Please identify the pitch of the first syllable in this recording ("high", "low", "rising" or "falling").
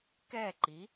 falling